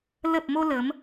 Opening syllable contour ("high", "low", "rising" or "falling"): low